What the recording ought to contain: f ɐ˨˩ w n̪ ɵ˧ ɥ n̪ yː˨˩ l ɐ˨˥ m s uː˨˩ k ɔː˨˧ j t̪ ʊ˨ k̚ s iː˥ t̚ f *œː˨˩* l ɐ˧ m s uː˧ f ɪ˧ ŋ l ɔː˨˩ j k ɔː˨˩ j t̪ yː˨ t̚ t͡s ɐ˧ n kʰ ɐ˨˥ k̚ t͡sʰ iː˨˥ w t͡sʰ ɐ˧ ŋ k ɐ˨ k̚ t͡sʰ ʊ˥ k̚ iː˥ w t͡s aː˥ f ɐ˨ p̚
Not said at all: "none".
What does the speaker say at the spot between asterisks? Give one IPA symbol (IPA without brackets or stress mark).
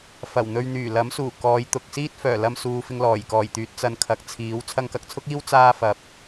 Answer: œː˨˩